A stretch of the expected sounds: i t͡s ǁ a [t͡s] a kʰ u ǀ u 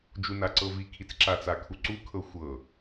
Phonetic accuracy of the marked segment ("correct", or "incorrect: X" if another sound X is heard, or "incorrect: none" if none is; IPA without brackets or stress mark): correct